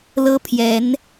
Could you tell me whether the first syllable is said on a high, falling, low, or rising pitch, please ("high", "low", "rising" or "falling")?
high